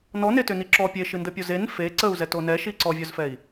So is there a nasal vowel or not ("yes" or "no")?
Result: no